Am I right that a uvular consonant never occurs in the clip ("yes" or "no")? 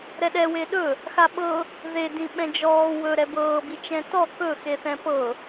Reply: yes